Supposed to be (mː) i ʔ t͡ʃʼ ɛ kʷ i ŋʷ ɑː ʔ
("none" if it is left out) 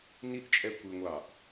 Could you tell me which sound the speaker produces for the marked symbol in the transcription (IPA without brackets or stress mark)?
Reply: n